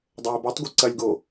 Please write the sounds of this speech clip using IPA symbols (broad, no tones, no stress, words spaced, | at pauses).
dˤəːɪ̯botˤɡʷɛ ǀɐlʲɡoː